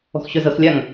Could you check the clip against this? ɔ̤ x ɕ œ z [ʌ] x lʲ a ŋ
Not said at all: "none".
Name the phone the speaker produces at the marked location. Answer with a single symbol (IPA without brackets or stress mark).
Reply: ʌ